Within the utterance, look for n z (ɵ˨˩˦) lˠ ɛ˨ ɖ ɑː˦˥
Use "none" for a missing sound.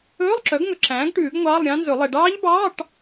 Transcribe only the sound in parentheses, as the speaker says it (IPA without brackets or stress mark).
ɵ˨˩˦